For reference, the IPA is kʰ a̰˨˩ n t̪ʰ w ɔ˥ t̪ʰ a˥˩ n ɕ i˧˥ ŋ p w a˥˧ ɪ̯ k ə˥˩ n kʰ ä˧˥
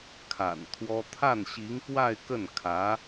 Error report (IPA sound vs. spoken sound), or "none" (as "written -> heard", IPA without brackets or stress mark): none